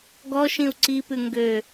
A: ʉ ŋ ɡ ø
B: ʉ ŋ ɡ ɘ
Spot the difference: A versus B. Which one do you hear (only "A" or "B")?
A